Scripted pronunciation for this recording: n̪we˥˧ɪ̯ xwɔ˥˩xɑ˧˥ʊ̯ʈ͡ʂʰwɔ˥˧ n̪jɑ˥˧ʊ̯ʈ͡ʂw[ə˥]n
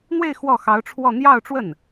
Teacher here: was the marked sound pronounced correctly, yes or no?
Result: no